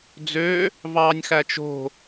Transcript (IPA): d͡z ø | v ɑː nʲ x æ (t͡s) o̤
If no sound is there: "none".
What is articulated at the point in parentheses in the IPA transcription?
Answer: t͡ʃ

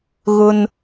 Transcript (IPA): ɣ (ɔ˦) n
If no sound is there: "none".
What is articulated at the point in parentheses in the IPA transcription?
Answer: ʊ˦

